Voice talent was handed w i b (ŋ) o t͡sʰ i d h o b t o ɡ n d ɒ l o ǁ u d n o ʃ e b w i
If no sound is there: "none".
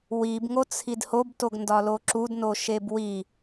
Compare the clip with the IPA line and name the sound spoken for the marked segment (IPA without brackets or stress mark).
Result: ŋ